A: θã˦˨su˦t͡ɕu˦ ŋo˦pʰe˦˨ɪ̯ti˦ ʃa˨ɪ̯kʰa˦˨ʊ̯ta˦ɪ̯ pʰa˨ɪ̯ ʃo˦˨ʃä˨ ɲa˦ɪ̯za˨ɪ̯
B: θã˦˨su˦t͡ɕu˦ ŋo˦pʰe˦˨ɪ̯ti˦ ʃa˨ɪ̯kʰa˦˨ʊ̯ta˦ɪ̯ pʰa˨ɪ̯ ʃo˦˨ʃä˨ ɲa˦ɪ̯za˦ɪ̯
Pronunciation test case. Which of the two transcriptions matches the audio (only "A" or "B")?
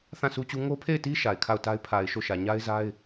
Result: B